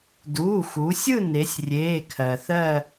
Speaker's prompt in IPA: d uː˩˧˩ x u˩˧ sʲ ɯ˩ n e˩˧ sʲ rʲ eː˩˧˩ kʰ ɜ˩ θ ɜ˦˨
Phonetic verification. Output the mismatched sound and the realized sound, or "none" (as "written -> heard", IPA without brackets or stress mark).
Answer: ɯ˩ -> ɯ˦˨